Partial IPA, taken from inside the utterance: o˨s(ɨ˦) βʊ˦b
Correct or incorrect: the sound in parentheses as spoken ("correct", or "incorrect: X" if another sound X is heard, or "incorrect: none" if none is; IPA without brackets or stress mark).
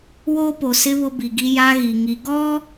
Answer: incorrect: ɪ˦